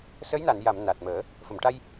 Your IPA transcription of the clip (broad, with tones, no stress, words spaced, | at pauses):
sə˧˥jna˨˩˨n ja˨˩˨m na˨˩t̚məː˨˩˦ | fə˨˩˨mʈa˧j